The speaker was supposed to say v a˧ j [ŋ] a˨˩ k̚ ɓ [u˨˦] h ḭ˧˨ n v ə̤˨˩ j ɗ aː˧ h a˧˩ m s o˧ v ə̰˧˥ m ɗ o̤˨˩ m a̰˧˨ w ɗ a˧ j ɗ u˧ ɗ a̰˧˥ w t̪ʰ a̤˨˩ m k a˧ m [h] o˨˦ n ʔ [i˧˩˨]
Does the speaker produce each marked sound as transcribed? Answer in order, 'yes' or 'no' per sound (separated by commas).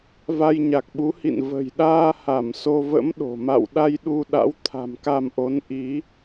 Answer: no, yes, no, no